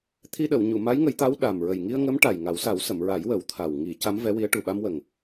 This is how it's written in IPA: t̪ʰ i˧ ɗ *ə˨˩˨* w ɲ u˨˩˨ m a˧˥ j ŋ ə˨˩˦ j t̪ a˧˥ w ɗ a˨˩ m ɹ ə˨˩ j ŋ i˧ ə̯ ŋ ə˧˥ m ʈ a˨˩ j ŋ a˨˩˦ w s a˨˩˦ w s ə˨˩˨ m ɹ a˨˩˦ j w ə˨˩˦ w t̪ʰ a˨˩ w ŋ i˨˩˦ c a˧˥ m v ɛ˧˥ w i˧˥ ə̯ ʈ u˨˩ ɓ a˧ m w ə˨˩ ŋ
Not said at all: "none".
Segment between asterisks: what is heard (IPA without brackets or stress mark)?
ə˨˩˨